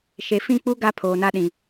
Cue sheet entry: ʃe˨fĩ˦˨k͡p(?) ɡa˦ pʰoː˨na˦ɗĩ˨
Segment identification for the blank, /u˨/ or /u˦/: u˦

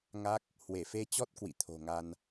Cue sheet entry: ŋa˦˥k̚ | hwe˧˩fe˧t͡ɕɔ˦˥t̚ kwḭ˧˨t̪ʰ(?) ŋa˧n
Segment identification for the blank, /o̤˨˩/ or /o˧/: o̤˨˩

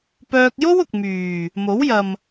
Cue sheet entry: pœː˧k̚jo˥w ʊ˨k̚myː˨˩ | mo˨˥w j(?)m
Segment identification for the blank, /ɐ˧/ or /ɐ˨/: ɐ˨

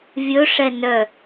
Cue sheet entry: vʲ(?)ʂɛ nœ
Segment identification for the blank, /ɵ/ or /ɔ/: ɵ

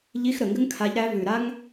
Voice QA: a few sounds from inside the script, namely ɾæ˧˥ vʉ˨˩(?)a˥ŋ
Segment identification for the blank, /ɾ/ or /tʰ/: ɾ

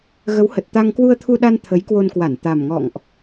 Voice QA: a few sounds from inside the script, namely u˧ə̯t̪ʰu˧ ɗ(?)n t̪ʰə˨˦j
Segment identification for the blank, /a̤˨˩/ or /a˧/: a˧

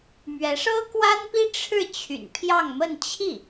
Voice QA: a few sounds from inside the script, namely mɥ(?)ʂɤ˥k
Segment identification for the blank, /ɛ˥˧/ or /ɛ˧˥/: ɛ˧˥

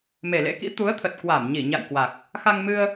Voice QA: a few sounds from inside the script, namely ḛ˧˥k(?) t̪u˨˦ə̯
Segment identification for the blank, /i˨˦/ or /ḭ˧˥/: ḭ˧˥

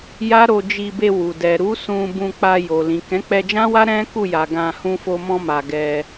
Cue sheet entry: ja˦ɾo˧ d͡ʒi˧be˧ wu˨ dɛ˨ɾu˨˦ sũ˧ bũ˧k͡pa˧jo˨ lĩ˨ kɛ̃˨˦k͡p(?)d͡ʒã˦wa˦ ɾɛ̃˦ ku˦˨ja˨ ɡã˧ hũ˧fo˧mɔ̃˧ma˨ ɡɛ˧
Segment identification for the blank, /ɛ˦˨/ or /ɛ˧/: ɛ˧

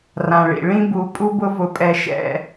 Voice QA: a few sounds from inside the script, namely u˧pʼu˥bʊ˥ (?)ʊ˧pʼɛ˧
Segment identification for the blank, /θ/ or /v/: v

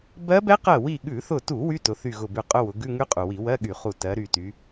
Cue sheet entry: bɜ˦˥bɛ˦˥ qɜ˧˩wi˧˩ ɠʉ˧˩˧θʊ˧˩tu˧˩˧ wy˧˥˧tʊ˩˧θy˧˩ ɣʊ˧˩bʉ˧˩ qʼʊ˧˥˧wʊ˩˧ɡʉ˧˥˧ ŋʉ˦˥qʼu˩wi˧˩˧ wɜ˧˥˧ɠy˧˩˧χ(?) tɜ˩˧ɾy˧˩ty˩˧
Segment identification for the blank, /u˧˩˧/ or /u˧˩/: u˧˩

